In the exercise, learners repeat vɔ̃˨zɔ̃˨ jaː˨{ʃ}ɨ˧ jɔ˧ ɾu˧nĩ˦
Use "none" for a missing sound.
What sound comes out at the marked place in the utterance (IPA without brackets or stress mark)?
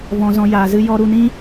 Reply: z